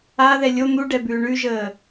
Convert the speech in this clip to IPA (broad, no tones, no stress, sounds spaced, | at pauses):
a ð ɛ lʲ o n̪ u ɖ ɛ b ʉː ɳ ʉ ʒ əː